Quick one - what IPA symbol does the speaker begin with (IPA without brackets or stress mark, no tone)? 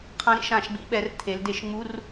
qʰ